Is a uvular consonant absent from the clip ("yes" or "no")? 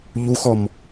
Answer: yes